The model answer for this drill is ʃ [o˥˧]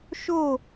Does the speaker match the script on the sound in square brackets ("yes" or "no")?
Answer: yes